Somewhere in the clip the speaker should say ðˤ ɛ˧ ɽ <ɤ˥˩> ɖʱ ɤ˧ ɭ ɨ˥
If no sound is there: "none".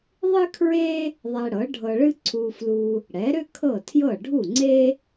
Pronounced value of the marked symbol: ɤ˩˥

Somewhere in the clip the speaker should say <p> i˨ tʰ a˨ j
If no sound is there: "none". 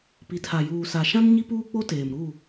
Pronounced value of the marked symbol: p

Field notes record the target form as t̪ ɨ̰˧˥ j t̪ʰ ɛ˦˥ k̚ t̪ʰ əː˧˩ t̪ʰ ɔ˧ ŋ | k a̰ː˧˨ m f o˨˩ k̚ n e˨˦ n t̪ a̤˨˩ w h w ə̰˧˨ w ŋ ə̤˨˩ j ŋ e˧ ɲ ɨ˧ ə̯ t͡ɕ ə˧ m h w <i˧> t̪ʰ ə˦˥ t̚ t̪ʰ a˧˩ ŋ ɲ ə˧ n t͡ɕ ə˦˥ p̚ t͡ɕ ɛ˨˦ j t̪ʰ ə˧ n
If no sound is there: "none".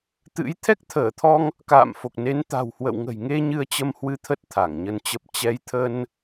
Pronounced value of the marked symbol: ɨ˧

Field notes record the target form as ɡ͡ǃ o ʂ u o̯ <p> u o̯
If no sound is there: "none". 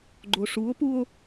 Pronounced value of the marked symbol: p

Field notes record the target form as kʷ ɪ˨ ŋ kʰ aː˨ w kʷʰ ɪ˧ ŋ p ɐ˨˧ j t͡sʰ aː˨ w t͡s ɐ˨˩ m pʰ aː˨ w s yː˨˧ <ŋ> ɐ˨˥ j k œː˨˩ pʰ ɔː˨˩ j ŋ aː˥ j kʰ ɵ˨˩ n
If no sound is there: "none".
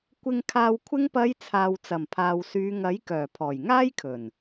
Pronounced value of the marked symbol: ŋ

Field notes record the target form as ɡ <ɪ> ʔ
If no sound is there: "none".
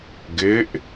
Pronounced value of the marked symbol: ɪ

